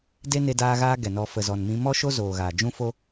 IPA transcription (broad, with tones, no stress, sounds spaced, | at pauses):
d e˦ n e˧ d aː˧ ɣ aː˧ ɡ ɛ˨ n ɔ˧ f ə˨ z ɔ˨ n m ĩ˧ m ɔ˦ ʃ o˦ z oː˨ ɣ aː˨ d͡ʒ ũ˦ f o˦